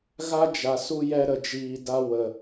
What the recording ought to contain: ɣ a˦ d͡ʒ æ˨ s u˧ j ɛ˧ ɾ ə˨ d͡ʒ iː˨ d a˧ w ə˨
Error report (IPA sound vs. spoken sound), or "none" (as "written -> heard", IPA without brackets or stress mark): æ˨ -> a˨